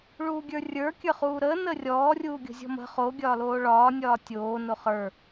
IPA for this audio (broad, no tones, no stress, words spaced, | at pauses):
ɭuːɡʲə˞rʲə˞ kʲə˞χuːɾəː nərʲɔː rʲuːɡʲo̤zʲɔ̤mə̤ χo ɡʲɒːloːɭɒː nʲɒːtʲoː noχə˞